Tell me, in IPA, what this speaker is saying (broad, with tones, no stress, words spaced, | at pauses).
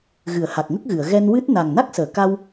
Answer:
ɣɨ˨˩˨ə̯ha˨˩k̚ŋə˦˥k̚ɣɨ˨˩˨ə̯ ɣɛ˧nwɨ˦˥t̚ na˨˩ŋna˦˥k̚səː˨˩˨ ka˧w